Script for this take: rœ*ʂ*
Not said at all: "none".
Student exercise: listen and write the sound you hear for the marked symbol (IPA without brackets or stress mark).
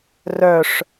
ʂ